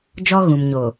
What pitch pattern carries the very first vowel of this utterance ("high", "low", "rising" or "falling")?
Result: high